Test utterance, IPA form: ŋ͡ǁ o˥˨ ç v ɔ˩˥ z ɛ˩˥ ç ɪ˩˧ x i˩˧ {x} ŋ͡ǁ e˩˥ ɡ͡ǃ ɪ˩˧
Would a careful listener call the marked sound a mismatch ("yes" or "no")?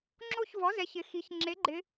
yes